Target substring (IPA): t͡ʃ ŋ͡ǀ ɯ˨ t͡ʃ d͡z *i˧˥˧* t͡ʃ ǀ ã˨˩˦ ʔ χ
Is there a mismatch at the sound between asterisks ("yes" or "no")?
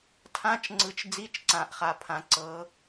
no